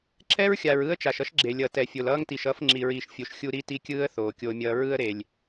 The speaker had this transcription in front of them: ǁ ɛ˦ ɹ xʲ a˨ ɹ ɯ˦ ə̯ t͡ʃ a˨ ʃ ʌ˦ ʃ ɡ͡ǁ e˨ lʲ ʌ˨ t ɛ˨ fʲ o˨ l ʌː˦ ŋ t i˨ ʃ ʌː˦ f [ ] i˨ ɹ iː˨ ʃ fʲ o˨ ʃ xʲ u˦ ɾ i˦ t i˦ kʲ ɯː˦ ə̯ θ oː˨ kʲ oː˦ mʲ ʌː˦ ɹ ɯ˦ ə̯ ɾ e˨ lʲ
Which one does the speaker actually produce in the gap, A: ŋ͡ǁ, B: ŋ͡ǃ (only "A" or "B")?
A